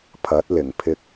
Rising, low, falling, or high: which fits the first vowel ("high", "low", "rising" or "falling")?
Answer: rising